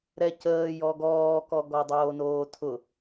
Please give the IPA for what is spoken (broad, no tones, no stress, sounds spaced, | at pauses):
ɾ ɛ c əː j ɔ ɡ ɔː k ɔ ɡ ɔ dˤ oː n oː tʰ ʊ